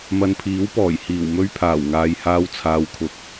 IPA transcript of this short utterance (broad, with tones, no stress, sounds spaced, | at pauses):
m ɐ˨ n pʰ iː˨˥ w p ɔː˨˩ j h iː˨˩ w m ɵ˧ ɥ pʰ aː˨˩ w ŋ aː˨ j h aː˧ w t͡sʰ aː˨˧ w kʰ ʊ˨˥ k̚